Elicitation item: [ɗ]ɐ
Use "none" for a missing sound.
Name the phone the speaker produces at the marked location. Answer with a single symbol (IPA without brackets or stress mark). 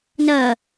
n